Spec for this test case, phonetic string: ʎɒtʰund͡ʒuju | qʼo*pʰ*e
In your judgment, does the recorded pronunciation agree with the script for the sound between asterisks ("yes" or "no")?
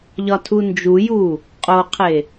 no